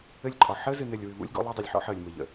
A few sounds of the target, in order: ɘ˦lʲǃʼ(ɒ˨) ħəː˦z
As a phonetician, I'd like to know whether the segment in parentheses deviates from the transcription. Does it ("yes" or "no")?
no